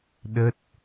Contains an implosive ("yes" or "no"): yes